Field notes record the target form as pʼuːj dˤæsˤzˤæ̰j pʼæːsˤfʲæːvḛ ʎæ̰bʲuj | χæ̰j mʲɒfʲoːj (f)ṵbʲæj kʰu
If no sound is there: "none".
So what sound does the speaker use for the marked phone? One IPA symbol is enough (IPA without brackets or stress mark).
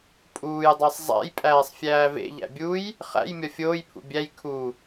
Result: pʰ